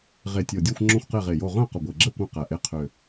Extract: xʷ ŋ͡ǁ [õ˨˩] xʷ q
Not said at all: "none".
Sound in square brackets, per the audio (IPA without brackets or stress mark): õ˥˨